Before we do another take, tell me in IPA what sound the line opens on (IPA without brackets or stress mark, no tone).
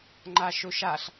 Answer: ŋ͡ǃ